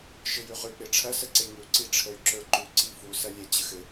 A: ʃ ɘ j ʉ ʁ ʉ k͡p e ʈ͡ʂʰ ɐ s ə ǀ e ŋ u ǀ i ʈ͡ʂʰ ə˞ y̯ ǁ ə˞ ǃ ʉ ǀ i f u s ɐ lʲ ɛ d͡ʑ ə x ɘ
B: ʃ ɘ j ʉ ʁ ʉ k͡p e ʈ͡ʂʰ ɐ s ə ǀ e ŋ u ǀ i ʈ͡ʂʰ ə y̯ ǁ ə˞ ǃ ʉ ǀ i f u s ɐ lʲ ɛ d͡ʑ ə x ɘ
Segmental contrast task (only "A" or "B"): B